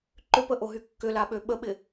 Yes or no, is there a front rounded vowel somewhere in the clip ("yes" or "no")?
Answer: yes